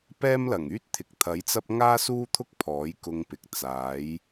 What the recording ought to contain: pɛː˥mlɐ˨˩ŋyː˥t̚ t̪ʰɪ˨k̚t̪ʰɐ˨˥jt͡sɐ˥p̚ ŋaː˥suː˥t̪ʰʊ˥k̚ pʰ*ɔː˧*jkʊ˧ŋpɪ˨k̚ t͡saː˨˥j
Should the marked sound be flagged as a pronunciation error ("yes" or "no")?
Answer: yes